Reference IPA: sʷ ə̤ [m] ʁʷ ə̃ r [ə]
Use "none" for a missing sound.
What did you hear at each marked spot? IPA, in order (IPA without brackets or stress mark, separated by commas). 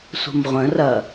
m, ɐ